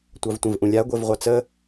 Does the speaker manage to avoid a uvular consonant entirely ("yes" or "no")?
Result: no